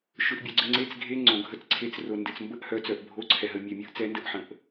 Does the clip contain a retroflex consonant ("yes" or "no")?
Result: no